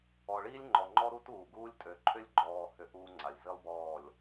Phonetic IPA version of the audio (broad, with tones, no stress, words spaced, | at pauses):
ɔ˨ɭiː˦lʲ ŋ͡ǃɔ˨ŋ͡ǃɔ˦ ɾu˦tuː˨ɡuː˦lʲ tʼø˨ǃʰʏ˦lʲɡ͡ǃɔː˨ hʏ˦ʔuː˦ŋ͡ǀa˨lʲ zi˦lˠbɔː˦˨lʲ